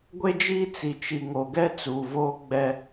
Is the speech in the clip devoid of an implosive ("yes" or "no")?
yes